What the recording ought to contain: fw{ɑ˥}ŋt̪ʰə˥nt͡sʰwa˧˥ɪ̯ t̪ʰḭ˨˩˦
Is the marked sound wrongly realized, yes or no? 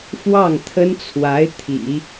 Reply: yes